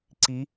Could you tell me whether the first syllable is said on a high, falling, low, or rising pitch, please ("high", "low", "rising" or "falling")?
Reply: rising